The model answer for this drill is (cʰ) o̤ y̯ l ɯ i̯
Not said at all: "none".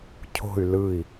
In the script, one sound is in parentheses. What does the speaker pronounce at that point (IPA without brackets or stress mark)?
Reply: cʰ